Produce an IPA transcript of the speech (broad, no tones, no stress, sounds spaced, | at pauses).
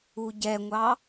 u ɟ ɛ ŋʷ ɑ